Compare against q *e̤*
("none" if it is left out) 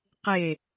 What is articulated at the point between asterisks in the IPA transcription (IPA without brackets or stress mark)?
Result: e